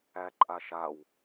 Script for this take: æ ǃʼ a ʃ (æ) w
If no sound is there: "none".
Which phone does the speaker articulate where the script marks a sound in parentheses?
a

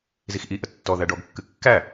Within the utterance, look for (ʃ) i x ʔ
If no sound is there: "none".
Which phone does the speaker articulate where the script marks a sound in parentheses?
z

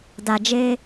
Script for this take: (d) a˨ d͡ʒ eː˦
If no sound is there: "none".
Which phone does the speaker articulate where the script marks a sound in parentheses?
d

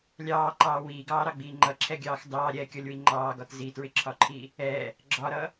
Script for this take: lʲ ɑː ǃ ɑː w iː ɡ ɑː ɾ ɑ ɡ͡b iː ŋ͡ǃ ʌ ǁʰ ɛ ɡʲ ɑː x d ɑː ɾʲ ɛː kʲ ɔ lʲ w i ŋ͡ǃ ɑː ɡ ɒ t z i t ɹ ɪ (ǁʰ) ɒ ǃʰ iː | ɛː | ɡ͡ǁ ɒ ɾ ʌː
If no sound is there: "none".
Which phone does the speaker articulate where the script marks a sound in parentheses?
ǁʰ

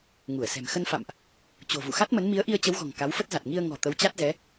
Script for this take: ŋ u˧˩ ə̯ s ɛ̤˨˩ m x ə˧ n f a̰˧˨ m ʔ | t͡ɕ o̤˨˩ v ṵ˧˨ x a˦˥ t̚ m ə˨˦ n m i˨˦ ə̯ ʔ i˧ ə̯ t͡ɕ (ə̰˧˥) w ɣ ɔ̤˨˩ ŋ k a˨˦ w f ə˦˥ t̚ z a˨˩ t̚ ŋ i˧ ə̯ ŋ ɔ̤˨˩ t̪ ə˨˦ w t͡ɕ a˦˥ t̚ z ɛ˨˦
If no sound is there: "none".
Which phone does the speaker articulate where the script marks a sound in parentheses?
ə˨˦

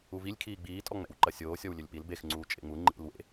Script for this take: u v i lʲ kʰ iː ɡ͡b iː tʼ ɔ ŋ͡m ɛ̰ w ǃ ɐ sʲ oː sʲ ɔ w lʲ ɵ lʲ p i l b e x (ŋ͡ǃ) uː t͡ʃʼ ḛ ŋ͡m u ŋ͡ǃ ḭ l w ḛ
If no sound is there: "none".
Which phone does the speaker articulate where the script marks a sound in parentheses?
ŋ͡ǀ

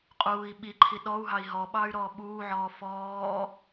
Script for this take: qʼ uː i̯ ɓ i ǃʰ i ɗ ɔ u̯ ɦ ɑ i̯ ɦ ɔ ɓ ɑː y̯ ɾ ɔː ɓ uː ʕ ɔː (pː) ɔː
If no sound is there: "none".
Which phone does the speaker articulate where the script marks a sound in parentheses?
f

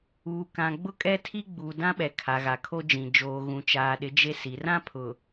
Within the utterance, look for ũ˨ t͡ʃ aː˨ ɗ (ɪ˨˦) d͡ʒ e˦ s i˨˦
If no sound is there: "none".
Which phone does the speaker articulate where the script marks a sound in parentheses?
ɪ˨˦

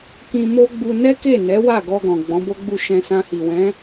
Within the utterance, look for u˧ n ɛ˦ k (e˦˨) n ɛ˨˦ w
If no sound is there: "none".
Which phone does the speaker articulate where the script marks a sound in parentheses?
e˦˨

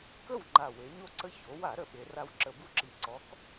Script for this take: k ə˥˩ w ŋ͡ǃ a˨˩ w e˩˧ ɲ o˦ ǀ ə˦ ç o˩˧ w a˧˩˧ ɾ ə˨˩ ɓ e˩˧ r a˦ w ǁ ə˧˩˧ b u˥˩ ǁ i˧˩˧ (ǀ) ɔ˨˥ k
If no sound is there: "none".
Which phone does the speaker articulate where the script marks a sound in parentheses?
ǀ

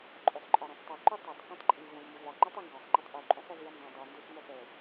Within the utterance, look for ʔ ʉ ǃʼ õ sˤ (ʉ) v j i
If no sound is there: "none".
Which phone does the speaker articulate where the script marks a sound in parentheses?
ø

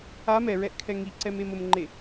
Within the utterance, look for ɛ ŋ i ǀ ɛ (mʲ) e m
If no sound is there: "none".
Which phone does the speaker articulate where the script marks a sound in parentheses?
m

